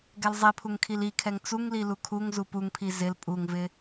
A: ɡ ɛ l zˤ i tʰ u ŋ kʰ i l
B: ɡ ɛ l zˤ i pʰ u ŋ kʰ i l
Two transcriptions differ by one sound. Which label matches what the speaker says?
B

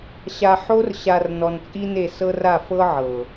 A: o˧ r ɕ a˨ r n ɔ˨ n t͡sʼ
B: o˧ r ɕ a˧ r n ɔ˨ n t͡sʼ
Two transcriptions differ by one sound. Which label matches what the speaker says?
A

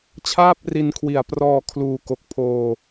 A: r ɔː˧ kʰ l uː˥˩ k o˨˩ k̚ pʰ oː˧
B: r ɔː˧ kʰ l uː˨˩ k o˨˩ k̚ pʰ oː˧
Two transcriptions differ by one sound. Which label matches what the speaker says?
B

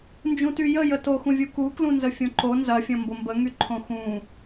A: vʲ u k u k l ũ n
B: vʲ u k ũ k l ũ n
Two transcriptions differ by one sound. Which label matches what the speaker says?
A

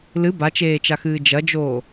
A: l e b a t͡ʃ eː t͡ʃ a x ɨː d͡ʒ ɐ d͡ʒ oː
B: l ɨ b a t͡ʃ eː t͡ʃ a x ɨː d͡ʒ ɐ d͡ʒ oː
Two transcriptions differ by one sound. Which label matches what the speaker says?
B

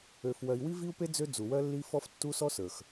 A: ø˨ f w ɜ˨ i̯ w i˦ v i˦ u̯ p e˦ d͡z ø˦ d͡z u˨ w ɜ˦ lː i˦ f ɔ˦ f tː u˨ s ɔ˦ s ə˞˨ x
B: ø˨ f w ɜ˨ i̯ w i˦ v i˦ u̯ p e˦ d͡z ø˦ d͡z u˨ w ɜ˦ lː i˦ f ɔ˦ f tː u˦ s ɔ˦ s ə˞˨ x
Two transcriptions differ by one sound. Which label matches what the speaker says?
B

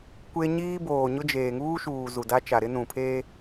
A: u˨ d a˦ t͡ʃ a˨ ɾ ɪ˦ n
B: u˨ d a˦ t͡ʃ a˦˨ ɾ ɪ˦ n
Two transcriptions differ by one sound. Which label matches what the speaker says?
A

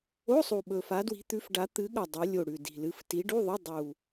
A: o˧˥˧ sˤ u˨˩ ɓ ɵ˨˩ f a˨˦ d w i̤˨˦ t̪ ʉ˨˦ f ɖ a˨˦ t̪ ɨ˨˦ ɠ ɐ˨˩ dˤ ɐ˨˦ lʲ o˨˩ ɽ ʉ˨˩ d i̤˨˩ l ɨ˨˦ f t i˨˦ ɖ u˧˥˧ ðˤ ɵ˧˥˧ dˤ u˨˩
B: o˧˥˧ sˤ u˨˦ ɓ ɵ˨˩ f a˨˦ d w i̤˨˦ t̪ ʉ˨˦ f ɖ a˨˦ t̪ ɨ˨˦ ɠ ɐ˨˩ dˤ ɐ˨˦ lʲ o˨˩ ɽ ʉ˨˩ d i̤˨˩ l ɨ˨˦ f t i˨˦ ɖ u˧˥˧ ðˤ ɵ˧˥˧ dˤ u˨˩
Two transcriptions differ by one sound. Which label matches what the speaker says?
A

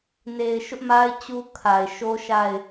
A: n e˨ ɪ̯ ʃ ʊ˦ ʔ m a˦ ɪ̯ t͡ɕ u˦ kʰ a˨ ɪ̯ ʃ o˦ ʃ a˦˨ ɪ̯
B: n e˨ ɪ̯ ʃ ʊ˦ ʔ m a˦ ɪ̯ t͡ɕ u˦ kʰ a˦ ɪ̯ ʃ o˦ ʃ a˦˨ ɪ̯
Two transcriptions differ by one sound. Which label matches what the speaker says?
A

